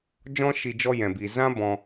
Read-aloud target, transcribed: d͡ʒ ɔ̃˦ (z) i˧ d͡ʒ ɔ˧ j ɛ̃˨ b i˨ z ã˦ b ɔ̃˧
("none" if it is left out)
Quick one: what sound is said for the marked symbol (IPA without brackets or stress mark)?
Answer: ʃ